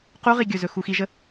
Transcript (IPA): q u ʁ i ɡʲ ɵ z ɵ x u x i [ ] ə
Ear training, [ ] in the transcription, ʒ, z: ʒ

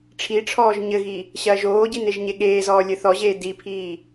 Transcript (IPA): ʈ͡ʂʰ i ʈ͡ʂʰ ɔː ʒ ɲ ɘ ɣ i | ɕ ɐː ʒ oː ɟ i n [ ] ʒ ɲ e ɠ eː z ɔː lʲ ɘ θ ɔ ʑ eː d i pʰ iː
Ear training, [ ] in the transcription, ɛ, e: e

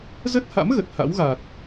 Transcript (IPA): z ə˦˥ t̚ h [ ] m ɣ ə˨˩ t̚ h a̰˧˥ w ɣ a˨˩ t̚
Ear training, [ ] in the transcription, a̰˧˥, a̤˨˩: a̰˧˥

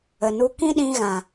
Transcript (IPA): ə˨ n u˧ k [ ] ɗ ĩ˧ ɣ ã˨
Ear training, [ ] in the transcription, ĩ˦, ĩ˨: ĩ˦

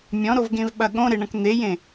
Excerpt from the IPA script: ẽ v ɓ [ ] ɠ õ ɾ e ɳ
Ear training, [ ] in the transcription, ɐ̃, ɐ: ɐ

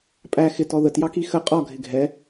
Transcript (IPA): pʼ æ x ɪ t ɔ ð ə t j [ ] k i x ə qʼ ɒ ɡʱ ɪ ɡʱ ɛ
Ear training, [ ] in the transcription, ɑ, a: ɑ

